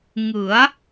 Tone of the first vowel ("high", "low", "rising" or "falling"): rising